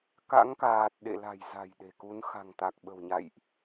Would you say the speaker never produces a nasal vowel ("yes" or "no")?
yes